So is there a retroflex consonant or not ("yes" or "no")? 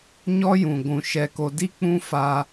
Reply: no